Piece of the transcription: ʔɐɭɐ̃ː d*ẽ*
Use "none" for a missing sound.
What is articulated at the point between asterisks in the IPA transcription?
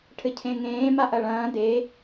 e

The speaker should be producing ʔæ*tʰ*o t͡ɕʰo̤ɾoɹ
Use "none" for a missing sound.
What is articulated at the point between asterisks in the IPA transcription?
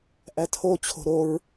tʰ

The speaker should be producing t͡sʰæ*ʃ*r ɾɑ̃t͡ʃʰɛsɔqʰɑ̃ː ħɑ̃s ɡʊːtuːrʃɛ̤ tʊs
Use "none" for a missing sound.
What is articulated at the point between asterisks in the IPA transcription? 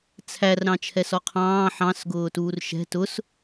none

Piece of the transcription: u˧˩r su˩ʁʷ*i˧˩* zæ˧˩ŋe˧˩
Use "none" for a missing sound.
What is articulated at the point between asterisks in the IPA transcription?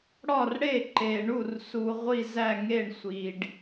i˧˩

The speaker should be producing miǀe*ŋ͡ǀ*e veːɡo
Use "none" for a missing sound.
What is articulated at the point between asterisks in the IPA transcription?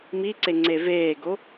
ŋ͡ǀ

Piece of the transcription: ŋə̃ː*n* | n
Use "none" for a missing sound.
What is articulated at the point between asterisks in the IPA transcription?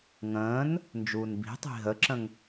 n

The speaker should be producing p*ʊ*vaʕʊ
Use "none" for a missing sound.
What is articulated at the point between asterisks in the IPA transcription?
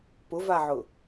ʊ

